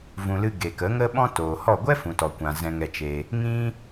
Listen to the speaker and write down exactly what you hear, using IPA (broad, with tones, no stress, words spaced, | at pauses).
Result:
vũ˨lɨ˧ ɡe˨kə˨˦ŋə˦ ɓɔ̃˦toː˨hɔ˦˨ ɡʷɛ˦fũ˨tɔ˨ kʷã˨ zɛ̃˧ŋɛ˧t͡ʃe˧ | ŋĩ˦